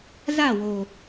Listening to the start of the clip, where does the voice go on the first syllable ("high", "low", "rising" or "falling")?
falling